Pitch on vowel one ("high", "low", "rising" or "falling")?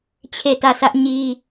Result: falling